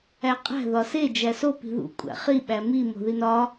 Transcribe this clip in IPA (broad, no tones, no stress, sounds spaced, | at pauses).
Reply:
æ qʼ æ̤ ð ɒ s e d͡ʒ æ s o p i̤ ð ṵ kʷʼ æ̰ χ i ɓ æ m i m o̤ ð i n ɒ